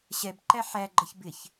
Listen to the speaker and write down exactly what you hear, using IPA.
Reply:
ɕ ɛ b ǃ æ ħ æ ɡ͡ǃ ʌ ç b ɪ ç

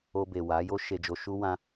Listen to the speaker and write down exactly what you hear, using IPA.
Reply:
o˧ b e˨ w a˨˦ j o˦ ʃ e˧ d͡ʒ o˧ ʃ u˦ w ã˦

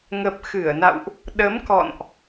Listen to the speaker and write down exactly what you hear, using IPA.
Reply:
ŋ ə˨˩ p̚ x ɨ˧˩ ə̯ n a̰˧˨ w ʔ | ɗ ə˨˦ m k ɔ̰˧˨ n ʔ

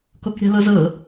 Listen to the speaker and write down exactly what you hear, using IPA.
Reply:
k o k ɾʲ a̤ l ɤ z ɤ

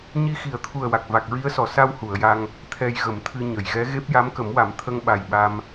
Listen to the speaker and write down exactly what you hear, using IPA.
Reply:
ɲ i˧ x i˨˩˦ ə̯ t̪ʰ u˨˩ ə̯ w a˨˩ k̚ v a˨˩ k̚ ɹ i˧˥ ə̯ s ɔ˨˩˨ s a˧ w h u˨˩˨ ə̯ j a˧ ŋ | t̪ʰ ɛ˧ j ɣ ə˨˩˦ m t̪ʰ ɨ˧ ɲ ə˨˩˨ j ɣ ɛ˧˥ ɣ e˦˥ p̚ j a˧˥ m k ə˨˩˦ m w a˨˩˦ m t̪ʰ ə˧ ŋ ɓ a˨˩ j ɓ a˧ m

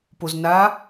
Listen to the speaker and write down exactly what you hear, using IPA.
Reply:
p o z n a

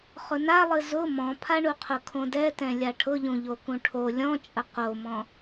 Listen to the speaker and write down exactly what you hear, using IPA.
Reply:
χ ʊ n a lˠ ɨ z ʊ m ɔ̃ pʰ a ɳ u qʰ ʊ kʰ õ d ɛ t ɛ̃ lʲ a ʈʰ ʊ ʎ ũ ʎ o k ũ ʈʰ o lʲ ɔ̃ t͡ʃʼ ə q o m ɔ̃

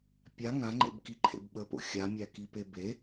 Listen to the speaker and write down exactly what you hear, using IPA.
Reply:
pʲ a ŋ ã ŋ͡ǃ ḛ b k i ǃʰ ḛ b ɓ ə p o̰ xʲ a mʲ æ k i p e b e

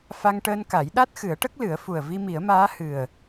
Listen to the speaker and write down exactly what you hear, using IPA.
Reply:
f a˧ ŋ ʈ əː˧ n k a˨˩˦ j ɗ a˦˥ t̚ x ɨ˨˩˦ ə̯ ʈ ə˦˥ k̚ l ɨ˨˩˦ ə̯ f u˨˩ ə̯ v i˧ m i˨˩˦ ə̯ m aː˧˥ h ɨ˨˩ ə̯

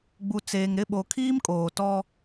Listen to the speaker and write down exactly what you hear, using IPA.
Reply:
ɡ͡b u˨ t͡s eː˨ ŋ ɾ ɪ˦˨ ɓ o˨ kʰ iː˦ m kʼ oː˨ t ɔ˦

